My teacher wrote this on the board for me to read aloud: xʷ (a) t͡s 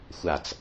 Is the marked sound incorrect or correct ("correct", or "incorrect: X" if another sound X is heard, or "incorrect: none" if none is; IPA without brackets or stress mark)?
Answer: correct